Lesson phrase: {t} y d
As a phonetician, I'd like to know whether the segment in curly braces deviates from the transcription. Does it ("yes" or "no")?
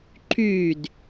yes